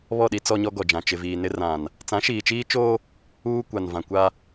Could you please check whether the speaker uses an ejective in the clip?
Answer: no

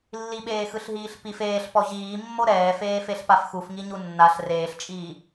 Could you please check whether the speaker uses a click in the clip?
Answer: no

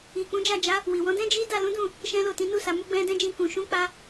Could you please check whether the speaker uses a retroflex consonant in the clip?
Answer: no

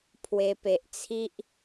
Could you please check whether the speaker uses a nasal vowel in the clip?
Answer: no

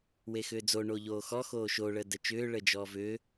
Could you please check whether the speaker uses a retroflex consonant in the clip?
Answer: yes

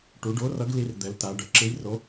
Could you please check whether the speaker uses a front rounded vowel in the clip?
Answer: no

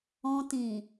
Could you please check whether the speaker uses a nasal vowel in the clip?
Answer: yes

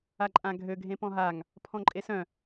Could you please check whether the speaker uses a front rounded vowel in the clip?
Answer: yes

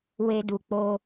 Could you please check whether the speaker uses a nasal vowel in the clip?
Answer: no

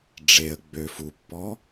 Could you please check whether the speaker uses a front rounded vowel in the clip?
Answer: yes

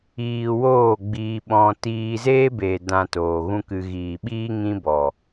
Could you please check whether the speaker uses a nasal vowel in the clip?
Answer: yes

